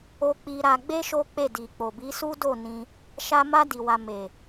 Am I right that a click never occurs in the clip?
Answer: yes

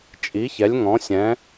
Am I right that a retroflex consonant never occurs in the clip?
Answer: yes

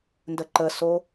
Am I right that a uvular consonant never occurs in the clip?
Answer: yes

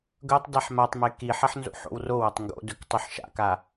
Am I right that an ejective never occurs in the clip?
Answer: yes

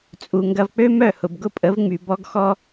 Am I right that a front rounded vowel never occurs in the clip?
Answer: no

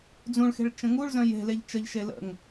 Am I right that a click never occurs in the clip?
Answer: yes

